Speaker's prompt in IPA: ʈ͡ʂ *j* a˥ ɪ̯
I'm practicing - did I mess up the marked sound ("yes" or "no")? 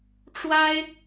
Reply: yes